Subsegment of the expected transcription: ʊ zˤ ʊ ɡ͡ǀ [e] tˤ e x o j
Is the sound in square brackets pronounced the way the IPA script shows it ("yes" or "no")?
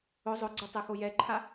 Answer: yes